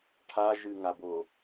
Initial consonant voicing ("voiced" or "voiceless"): voiceless